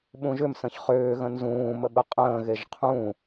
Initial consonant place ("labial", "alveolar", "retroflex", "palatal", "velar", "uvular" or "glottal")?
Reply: labial